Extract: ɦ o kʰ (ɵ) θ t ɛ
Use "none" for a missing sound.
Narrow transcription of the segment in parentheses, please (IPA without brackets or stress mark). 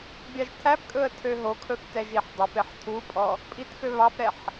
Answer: ɵ